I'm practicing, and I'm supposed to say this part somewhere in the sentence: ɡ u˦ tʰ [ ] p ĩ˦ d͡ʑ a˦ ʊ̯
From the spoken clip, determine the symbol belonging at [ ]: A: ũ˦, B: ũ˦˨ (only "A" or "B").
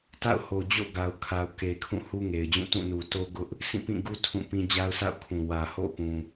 B